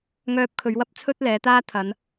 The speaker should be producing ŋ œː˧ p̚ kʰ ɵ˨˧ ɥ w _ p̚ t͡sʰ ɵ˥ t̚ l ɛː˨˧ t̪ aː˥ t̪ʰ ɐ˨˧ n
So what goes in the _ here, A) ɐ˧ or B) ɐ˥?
B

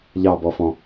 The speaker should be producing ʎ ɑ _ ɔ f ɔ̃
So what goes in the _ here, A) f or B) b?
B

